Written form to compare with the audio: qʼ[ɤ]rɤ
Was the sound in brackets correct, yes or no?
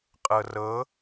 yes